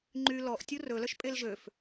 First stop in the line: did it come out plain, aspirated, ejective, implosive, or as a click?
click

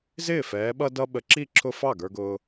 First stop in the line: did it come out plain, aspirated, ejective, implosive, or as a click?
implosive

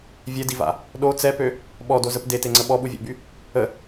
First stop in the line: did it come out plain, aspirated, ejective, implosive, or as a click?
plain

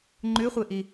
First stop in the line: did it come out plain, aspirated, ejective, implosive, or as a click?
click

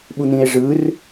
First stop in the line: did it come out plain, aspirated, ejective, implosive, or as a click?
implosive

